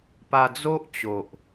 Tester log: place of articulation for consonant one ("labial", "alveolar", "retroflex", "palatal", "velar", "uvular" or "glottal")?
labial